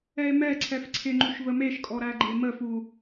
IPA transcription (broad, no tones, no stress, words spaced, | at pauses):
ɛe̯mɛǀʰɛf ǀʰɪŋ͡ǃuʃ vəmeʃkʼɔ ɾæɡ͡ǃeməfu